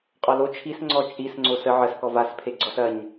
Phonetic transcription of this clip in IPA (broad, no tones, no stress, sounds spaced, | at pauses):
qʼ ɔ l o t͡ʃʰ i s ŋ͡ǀ ɔ t͡ʃʼ i s ŋ͡ǀ o s ə ʕ ə s k ɔ v a s pʰ e ɡ͡ǀ ɔ s ɐ ɲ